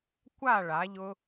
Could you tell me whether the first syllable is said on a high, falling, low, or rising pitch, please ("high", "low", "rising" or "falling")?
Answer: falling